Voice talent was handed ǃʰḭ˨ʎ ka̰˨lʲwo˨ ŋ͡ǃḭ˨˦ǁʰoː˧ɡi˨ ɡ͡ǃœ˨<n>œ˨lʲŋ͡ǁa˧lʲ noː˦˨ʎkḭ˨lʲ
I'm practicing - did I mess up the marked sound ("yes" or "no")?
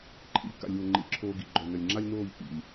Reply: no